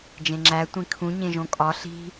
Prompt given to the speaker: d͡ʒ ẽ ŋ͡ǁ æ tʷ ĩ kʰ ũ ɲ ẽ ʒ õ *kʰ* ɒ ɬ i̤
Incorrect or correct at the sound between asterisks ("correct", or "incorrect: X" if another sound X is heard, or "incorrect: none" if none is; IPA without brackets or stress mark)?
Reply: incorrect: kʼ